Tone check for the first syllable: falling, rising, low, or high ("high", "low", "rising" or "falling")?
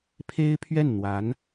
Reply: high